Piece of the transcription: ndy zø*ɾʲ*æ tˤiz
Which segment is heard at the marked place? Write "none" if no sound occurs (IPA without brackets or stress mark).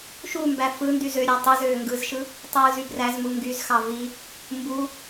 ɾʲ